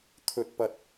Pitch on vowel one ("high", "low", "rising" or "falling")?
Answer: low